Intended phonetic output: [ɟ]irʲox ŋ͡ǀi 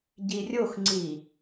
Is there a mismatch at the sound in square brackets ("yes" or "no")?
no